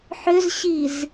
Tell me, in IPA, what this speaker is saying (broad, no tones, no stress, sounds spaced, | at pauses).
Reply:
ħ ʏ z ɕ i z